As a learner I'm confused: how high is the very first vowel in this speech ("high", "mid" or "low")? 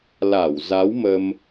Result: low